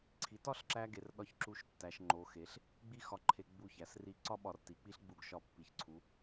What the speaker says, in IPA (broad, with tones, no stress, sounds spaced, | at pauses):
ǀʰ i˩˧ t ɒ˥˧ ɬ ǁ æ˧ ɡ e˩˧ r ɗ ɒ˧ ç ǁ u˧ ʃ tː æ˩˧ ʃ ŋ͡ǃ o˩˧ x e˩˧ ɬ | ɡ͡b i˥ x ɒ˧ ǃʰ e˧ ɡ͡b u˧˩ ç æ˩˧ s r i˧˩ ǀ ɒ˥ ɓ ɒ˧˩ r t i˩˧ k͡p i˥ ɬ ɡ͡b u˧˩ ɡ ʃ ɒ˧˩ pː i˩˧ ç ǀʰ u˩˧